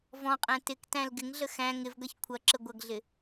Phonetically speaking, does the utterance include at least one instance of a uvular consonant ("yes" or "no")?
yes